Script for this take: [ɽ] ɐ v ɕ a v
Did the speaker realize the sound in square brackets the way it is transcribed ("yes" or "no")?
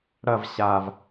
yes